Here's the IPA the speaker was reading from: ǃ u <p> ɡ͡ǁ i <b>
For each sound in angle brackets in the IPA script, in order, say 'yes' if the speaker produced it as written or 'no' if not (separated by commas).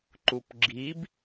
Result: yes, yes